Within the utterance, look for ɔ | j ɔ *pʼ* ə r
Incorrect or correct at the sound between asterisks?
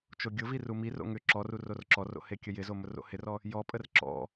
correct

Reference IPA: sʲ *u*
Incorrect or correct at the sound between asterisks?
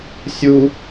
correct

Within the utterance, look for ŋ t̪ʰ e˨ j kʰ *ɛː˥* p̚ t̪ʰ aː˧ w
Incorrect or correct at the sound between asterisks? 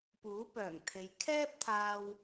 correct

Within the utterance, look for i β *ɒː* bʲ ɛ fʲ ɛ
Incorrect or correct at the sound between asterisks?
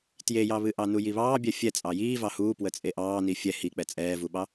incorrect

